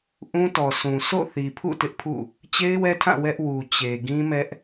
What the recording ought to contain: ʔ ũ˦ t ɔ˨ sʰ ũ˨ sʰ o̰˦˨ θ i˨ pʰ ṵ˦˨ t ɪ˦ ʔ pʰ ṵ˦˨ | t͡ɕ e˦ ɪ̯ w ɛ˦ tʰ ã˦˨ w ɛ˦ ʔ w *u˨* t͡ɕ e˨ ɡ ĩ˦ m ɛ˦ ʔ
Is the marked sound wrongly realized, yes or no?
no